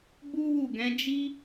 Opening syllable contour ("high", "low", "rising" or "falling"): high